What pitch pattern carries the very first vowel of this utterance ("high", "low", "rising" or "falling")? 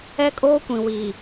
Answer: high